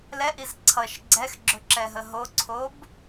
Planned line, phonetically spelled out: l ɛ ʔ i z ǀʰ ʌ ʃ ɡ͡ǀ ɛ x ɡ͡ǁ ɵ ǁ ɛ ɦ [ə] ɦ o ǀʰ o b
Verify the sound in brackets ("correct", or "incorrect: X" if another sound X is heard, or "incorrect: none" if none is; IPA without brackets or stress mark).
correct